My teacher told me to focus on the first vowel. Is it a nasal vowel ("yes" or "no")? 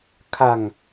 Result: no